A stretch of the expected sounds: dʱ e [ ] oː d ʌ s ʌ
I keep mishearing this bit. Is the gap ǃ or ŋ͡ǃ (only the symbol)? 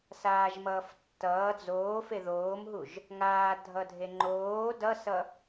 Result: ŋ͡ǃ